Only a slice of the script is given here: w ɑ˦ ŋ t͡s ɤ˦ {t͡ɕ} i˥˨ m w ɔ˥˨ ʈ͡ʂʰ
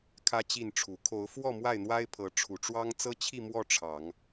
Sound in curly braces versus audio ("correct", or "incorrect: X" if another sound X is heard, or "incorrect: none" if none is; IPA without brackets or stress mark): incorrect: t͡ɕʰ